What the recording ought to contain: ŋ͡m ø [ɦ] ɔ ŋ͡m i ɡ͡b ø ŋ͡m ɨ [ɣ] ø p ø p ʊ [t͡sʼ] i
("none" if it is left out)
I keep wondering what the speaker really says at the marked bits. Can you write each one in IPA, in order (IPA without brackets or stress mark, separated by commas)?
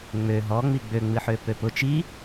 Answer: ɦ, ħ, t͡ʃ